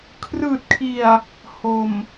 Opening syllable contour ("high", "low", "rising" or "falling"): low